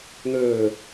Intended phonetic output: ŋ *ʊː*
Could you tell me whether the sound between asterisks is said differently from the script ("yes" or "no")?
yes